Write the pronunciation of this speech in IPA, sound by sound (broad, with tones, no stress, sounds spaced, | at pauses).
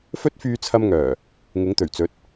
f ɵ˥ t̚ f yː˧ t͡sʰ ɐ˧ m ŋ œː˨˩ | ŋ ɪ˨˥ ŋ t̪ ɵ˨˩ ɥ t͡s ɵ˨˥ t̚